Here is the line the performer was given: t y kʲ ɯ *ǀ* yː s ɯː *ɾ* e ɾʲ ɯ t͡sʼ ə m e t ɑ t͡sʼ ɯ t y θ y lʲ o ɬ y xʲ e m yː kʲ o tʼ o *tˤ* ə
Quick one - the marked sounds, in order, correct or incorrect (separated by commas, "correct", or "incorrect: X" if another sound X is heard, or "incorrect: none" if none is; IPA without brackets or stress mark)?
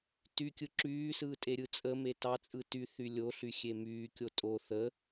incorrect: ǁ, incorrect: tʼ, incorrect: θ